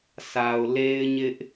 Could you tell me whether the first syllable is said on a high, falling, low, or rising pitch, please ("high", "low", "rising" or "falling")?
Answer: low